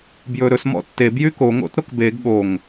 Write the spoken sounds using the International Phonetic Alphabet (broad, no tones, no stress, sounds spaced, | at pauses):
b j ɵ ɾ ɵ s m ɔ̰ tː e b j y k o ŋ o̰ t ɾ o k b e ɡ ɠ o ŋ